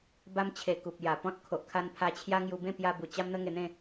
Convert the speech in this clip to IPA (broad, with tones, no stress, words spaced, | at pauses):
ba˧mt͡ɕʰe˨˩ ku˨p̚ ja˨˩pɔ̃˦t̚ kʰo˨ʔkʰa˧npʰa˧t͡ɕʰja˦ ŋju˧bẽ˥˧ pja˧bu˨˩ t͡ɕa˦mn̪ə˦ŋe˧n̪ẽ˥˧